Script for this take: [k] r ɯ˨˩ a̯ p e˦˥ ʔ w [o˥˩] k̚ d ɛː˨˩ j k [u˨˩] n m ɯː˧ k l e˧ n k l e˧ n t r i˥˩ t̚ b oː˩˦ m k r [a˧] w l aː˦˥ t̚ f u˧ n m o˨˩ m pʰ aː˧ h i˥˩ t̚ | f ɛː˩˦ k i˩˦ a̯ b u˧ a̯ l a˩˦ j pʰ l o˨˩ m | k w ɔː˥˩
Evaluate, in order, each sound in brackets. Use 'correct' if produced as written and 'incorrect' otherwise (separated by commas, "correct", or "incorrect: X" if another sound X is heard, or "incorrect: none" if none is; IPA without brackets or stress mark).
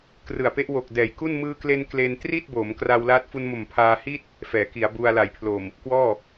correct, incorrect: o˨˩, incorrect: u˥˩, correct